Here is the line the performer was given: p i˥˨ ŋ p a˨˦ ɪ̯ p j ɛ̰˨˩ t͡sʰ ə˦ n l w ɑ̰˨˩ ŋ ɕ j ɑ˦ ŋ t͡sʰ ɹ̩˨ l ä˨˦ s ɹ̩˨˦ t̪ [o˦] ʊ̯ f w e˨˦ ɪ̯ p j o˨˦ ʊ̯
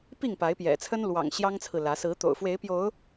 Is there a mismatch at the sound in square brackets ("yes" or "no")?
yes